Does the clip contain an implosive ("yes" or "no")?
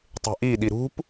yes